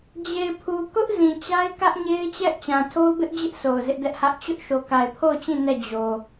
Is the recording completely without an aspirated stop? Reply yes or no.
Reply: no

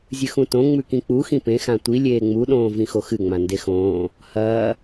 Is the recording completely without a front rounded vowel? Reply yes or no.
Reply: yes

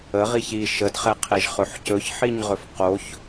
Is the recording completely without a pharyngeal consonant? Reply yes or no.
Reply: no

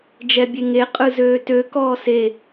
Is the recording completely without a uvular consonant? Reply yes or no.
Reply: no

